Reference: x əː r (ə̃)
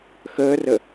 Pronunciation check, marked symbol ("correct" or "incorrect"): incorrect